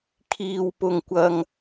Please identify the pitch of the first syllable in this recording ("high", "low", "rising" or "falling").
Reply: low